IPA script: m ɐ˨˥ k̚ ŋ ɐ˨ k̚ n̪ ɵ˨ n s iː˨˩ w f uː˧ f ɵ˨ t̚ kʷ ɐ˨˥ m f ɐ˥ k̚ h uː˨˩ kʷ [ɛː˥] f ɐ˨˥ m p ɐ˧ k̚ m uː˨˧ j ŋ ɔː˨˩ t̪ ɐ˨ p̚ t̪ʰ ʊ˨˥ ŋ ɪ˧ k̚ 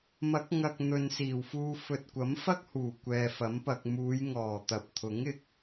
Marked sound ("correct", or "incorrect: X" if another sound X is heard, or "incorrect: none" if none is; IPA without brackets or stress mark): incorrect: ɛː˨